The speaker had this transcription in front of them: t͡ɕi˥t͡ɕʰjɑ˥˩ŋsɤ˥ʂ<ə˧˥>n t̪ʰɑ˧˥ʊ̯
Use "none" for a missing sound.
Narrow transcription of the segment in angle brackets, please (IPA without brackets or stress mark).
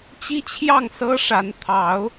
a˧˥